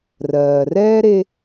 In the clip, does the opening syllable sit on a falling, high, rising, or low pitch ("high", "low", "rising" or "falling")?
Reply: low